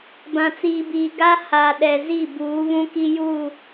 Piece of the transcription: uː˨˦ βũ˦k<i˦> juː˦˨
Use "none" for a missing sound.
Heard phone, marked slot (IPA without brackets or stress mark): i˦